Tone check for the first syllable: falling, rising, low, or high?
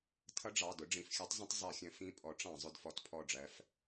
rising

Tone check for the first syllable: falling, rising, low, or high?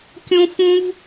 high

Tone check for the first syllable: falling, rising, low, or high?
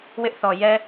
high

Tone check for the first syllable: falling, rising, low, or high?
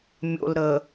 low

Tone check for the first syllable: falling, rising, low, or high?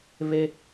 low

